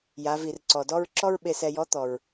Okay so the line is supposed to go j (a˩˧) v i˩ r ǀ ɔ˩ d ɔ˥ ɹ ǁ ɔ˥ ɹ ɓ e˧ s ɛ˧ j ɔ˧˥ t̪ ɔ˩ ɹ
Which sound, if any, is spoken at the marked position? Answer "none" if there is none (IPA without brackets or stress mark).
a˩˧